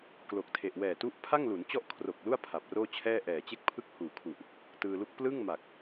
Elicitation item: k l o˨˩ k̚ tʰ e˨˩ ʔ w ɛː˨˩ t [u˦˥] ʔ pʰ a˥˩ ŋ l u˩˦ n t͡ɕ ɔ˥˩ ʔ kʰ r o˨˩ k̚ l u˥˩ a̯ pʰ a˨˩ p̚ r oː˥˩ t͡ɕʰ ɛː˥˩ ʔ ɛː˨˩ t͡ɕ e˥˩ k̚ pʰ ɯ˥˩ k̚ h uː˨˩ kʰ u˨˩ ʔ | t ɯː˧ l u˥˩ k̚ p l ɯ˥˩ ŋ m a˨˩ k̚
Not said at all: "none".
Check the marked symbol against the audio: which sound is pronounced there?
u˦˥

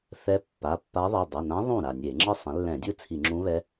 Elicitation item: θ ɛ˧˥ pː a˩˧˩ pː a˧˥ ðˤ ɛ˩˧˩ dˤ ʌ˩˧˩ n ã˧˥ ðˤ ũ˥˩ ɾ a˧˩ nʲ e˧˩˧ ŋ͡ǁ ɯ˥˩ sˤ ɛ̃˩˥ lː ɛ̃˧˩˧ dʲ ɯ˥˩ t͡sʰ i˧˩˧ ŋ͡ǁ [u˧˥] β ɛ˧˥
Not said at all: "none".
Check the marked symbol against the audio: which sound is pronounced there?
ũ˧˥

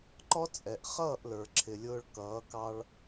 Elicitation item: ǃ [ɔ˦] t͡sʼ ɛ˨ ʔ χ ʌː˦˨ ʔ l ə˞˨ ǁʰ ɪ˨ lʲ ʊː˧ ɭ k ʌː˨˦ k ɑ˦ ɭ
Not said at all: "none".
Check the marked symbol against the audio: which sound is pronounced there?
ɔ˦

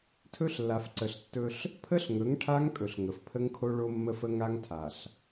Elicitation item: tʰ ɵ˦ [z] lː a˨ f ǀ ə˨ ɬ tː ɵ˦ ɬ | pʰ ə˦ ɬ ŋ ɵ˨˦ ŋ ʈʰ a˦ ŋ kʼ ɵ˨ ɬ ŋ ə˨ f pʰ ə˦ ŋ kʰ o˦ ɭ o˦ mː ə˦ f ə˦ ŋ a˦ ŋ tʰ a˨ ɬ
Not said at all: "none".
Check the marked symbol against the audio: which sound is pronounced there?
ɬ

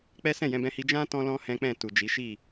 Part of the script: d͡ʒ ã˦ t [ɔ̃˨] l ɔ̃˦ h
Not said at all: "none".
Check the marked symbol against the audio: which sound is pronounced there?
ɔ̃˦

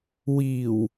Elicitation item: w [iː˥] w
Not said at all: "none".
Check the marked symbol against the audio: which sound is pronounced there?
iː˨˩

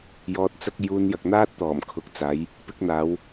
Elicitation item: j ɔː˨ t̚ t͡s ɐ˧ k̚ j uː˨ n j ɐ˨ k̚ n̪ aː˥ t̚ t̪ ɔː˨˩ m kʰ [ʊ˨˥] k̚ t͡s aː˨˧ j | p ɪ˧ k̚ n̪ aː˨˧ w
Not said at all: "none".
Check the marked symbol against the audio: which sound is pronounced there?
ʊ˨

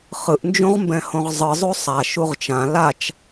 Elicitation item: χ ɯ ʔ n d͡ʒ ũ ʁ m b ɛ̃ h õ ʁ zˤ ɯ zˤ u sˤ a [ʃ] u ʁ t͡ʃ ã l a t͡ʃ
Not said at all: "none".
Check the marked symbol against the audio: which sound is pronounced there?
ʃ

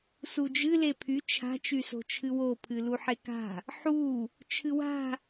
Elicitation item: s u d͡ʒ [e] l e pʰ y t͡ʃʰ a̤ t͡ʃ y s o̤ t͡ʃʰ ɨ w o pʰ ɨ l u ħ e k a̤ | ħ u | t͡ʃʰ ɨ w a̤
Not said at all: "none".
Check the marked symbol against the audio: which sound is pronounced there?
ɨ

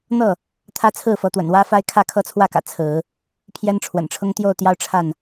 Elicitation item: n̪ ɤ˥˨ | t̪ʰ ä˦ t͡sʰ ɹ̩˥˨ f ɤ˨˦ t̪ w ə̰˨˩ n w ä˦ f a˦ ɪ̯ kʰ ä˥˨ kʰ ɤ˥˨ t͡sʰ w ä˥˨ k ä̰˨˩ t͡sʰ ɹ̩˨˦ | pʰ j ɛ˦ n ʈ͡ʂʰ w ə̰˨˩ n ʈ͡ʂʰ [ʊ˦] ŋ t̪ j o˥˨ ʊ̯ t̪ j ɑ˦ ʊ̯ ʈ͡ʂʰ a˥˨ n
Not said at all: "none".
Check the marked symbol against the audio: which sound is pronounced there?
ʊ˦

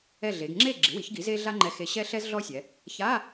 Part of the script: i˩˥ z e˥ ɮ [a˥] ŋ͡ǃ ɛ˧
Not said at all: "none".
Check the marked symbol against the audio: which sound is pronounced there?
a˥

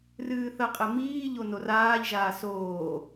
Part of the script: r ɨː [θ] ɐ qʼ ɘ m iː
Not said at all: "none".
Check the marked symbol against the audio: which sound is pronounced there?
θ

